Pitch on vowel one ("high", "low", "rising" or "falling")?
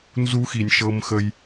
high